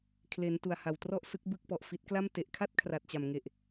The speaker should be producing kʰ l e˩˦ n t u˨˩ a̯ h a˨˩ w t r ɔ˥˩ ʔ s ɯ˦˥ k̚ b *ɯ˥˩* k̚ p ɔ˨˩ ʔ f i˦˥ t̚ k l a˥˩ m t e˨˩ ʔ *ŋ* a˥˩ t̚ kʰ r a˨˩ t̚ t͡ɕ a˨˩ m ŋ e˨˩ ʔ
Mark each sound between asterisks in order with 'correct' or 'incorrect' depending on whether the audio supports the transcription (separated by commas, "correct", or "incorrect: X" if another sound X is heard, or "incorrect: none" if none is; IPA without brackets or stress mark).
correct, incorrect: kʰ